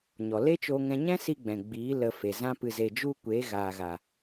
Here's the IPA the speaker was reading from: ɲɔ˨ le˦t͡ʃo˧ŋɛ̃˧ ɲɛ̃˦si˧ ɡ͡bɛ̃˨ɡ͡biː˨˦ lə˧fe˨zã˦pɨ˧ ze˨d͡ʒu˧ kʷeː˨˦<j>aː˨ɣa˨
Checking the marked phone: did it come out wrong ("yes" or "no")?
yes